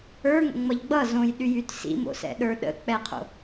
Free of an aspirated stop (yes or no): no